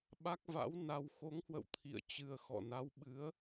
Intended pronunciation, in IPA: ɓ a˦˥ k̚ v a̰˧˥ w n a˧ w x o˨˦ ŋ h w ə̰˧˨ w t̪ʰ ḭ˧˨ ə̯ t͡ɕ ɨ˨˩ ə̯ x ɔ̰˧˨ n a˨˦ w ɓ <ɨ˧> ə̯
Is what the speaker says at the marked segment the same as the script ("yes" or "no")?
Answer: no